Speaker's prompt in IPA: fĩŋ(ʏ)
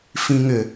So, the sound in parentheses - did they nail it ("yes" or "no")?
yes